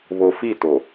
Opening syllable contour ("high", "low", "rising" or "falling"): low